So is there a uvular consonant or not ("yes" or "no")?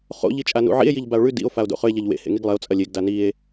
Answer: yes